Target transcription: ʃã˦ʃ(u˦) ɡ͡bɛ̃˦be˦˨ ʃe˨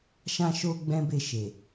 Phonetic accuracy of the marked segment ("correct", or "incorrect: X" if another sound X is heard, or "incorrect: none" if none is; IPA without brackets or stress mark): incorrect: o˦